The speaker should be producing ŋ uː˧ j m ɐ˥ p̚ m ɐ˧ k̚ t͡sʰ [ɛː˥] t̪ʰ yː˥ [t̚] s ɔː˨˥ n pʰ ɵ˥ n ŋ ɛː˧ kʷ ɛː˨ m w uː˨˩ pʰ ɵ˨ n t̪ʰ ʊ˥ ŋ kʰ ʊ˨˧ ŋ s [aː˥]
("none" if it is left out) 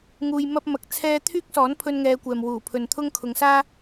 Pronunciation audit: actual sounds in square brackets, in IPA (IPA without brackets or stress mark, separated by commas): ɛː˥, k̚, aː˥